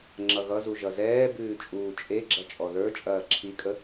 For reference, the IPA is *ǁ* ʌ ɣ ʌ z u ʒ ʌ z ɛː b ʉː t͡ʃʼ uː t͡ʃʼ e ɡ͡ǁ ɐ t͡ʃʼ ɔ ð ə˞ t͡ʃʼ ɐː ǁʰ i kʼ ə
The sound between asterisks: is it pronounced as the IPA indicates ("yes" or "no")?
no